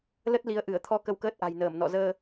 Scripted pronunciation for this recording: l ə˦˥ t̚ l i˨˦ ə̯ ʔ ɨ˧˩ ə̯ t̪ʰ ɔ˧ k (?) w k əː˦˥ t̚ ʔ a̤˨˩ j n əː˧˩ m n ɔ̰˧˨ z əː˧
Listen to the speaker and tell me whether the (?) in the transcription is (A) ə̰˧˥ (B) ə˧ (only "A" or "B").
B